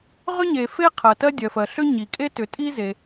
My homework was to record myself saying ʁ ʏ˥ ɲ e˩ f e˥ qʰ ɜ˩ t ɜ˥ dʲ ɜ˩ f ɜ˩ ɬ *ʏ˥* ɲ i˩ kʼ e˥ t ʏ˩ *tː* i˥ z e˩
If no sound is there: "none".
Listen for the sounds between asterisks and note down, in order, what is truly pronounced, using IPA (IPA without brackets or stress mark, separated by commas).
ʏ˥, tʼ